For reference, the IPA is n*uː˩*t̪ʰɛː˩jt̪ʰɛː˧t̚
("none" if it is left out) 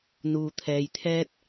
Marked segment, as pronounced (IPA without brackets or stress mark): uː˩